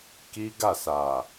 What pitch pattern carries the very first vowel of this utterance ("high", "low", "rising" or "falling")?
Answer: high